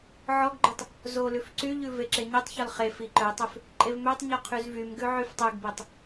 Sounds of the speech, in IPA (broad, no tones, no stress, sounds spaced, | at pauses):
ʕ ɔ ɡ ɡ͡ǃ y tˤ | z o l ʉ f ǀ y ʎ ʉ v e ǁ e ɲ y tˤ ç ɔ l χ e f i ǃ œ tˤ ʉ f | ǃʼ e v m ø tˤ ɲ ɔ qʰ y z v y m ɡ ʉ ʕ y f tˤ ʉ ɡ b e tˤ